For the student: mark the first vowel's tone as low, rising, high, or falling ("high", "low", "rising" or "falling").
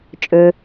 low